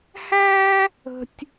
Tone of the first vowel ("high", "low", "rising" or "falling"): high